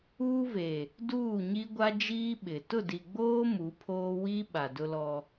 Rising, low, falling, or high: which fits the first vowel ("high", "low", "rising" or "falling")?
high